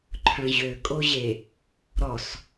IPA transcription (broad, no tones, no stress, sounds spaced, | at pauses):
ǃʰ œ̃ ʑ ø kʼ o ʑ e | ɾ ɔ s